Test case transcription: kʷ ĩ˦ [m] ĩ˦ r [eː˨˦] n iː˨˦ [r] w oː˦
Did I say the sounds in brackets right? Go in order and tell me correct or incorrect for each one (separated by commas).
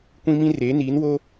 correct, correct, incorrect